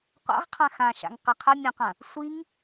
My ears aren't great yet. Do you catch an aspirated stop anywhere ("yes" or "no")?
yes